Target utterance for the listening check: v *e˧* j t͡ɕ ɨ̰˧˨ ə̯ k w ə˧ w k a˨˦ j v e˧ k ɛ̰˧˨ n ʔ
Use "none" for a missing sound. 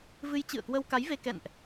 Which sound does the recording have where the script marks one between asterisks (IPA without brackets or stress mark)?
ɨ˧